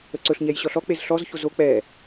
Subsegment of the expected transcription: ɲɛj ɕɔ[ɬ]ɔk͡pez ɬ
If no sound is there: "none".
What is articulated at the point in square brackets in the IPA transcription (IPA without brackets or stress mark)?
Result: ɬ